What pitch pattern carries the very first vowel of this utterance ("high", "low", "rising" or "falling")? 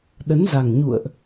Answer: rising